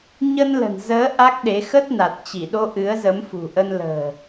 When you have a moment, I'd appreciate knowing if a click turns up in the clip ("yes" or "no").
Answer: no